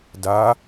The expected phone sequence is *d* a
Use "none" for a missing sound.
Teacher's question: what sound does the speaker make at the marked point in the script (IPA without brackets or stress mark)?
d